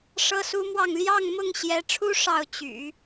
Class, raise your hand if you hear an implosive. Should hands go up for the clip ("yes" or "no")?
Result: no